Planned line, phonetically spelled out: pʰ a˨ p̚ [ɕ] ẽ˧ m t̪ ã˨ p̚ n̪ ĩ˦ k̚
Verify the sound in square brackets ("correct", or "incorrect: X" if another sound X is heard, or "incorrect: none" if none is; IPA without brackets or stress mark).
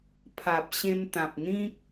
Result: correct